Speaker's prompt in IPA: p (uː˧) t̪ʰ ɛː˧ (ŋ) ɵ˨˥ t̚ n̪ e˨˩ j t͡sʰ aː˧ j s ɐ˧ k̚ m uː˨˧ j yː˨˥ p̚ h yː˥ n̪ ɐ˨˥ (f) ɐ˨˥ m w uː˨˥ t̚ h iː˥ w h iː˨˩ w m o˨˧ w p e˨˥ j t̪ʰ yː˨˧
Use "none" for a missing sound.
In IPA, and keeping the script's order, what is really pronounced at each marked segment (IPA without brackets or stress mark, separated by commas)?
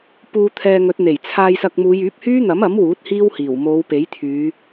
uː˧, ŋ, m